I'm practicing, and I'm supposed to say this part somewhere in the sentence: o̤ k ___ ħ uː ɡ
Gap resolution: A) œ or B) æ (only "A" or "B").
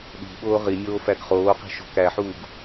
B